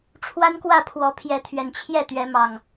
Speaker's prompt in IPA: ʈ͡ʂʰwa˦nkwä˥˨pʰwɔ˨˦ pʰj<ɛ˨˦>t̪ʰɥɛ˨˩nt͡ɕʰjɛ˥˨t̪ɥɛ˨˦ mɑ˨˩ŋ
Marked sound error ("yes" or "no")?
no